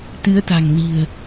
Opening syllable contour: rising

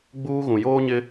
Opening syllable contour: high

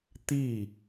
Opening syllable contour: falling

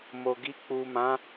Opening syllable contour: low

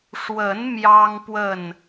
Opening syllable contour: rising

